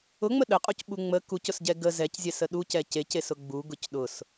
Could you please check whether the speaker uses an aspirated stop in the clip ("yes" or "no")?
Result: no